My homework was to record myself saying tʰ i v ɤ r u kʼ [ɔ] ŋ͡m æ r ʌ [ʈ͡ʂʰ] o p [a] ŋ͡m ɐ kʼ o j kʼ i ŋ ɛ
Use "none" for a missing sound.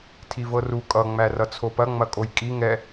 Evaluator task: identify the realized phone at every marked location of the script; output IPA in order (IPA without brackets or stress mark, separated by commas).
ʌ, t͡sʰ, ɐ